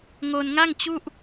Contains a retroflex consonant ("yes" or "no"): no